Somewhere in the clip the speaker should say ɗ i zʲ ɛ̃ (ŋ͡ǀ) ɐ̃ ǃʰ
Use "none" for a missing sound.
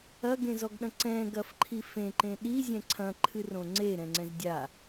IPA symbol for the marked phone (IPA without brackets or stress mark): ǀʰ